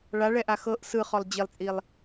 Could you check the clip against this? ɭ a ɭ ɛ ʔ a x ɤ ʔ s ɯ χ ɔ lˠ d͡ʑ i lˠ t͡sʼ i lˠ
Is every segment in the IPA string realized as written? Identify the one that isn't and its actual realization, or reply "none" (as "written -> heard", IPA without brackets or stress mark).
none